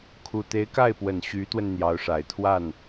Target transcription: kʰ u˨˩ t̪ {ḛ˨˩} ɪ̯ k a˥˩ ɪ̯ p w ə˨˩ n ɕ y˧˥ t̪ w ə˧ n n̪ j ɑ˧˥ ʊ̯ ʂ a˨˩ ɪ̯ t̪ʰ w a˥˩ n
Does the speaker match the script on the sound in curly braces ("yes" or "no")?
no